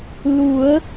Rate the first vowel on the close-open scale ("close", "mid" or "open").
close